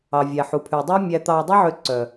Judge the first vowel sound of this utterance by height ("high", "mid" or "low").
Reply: low